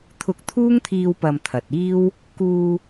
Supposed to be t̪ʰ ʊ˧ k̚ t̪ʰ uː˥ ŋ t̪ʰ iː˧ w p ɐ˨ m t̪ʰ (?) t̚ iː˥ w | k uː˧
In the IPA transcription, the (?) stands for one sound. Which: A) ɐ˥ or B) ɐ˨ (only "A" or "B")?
B